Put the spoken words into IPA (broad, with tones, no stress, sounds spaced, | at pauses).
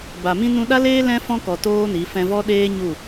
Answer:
b a˨ m ĩ˦ n ũ˧ ɗ a˦ l eː˦ l ɛ̃˦ f ɔ̃˦ k ɔ˨ t oː˦ n i˨˦ f ɛ̃˧ v ɔ˦ ɗ eː˦ ɲ u˦˨